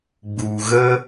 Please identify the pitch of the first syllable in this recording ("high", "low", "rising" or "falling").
low